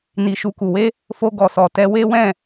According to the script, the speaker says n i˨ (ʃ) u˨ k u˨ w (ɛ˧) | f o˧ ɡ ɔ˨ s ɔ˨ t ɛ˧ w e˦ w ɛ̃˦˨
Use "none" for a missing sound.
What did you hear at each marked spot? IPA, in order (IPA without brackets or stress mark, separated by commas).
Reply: ʃ, e˧